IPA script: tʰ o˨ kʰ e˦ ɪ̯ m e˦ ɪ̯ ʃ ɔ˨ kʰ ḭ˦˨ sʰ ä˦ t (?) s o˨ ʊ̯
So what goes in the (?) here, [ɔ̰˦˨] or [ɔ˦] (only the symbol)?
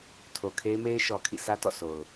ɔ̰˦˨